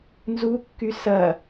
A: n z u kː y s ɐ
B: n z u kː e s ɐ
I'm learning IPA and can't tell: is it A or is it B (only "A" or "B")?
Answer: A